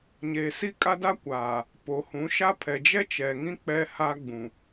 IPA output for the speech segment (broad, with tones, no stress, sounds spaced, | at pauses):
ɲ eː˨ s i˦ kʼ a˦ d a˦ kʷ aː˨ | p o˨ h ũ˨˦ ʃ a˦ pʰ ɛ˨ d͡ʒ ɛ˦ t͡ʃ ɛ˨ ŋ ĩ˦ k͡p ɛ˦ h a˦ ɡ͡b ũ˨